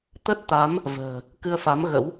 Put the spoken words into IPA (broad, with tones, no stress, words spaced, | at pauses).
t̪ə˦˥t̚t̪a˨˦m | və̤ː˨˩ | kɨ˧ə̯fa˨˦mɣə̰˧˥w